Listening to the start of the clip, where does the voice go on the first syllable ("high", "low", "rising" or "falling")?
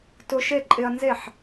high